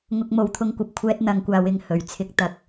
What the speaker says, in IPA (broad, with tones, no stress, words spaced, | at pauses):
ŋʊ˧k̚mo˨˧wt̪ʰʊ˧ŋkʷɐ˨p̚ kʷʰɛː˥t̚n̪ɐ˨˧ŋkʷaː˨˧w ɪ˨ŋhɵ˨˩ɥt͡sʰɪ˧k̚ t̪ɐ˨˥k̚